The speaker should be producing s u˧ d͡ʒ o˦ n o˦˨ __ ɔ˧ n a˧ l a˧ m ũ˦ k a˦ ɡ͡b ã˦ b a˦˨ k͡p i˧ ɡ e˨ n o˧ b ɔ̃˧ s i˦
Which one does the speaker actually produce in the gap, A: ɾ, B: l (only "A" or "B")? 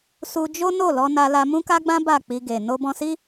B